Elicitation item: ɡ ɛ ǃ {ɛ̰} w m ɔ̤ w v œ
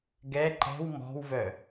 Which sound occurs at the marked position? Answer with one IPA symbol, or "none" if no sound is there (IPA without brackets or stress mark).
ɛ̤